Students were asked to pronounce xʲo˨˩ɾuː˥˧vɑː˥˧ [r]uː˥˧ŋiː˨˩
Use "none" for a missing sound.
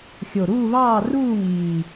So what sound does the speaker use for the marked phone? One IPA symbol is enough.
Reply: r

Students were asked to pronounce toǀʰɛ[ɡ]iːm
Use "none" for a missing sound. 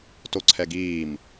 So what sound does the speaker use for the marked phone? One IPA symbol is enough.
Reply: ɡ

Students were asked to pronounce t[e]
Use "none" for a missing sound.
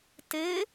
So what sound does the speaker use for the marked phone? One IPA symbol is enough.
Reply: e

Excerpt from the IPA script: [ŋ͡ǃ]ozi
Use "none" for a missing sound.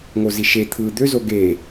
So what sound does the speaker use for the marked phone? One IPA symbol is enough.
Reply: ŋ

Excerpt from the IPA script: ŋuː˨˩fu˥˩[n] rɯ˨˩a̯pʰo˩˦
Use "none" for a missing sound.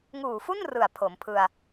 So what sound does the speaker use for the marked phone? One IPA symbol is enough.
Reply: n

